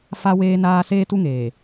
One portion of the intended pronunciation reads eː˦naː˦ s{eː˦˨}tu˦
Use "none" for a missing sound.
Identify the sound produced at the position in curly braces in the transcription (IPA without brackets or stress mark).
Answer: eː˦